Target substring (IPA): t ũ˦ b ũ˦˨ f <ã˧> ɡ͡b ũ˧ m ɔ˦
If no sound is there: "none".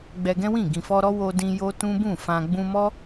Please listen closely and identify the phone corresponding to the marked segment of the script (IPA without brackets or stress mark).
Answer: ã˧